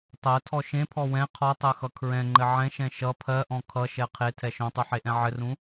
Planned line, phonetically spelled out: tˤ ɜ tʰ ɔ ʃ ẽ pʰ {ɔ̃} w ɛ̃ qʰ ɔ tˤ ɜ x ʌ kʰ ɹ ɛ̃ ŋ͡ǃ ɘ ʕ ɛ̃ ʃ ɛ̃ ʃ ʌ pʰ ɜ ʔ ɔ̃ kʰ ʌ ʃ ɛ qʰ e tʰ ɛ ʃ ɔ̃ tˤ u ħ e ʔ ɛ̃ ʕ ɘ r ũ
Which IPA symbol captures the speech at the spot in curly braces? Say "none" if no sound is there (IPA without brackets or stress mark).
ɔ